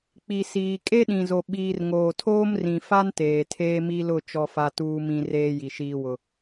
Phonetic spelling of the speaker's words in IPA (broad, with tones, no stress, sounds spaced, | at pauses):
k͡p i˨ s iː˨ kʼ e˦ ɗ ĩ˨ z o˨ ɓ iː˨ r ŋ oː˨ tʰ oː˦ m r ĩ˨ f a˦ n t eː˨ tʰ eː˦ m i˦ l ʊ˦˨ t͡ʃ ɔ˦ f a˦ t uː˦ m ĩ˦ r eː˦ j i˨ ʃ iː˦ w ʊ˦